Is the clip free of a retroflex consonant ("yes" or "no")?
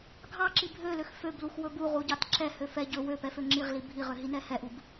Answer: yes